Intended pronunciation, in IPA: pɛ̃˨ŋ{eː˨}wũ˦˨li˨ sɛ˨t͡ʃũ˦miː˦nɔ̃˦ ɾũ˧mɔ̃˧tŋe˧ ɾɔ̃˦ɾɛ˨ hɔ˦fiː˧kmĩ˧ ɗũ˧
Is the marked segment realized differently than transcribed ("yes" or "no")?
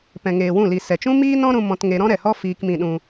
no